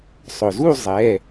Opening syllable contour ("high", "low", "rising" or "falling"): low